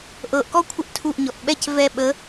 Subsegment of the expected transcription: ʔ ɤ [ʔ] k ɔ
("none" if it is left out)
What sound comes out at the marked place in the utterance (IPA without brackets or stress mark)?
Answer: ʔ